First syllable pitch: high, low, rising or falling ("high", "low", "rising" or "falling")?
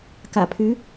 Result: low